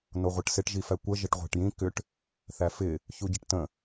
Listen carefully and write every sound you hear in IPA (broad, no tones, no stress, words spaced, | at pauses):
noʁʷəʈsɪʈ ʒifækʷə ʒəʈʁʷæ̤ʈjĩ kʏʈ | θæfɪ | çuɟɪʈtə̃